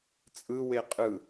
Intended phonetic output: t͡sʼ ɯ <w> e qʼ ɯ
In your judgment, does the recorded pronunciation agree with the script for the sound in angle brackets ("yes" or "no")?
yes